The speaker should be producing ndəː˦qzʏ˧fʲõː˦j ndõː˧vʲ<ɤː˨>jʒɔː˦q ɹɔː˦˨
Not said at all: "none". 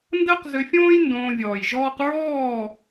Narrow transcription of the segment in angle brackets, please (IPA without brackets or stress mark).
ɔː˨